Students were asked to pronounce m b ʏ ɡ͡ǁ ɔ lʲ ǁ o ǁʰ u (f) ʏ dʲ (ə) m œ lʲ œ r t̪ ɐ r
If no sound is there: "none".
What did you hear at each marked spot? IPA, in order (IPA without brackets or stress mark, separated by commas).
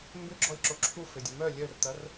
f, ə